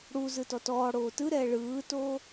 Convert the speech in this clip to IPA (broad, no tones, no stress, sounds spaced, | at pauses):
ɽ u z ɯ t ɔ t ɔː ɽ oː t ɯ ɾ ɛː ɭ ɯː t oː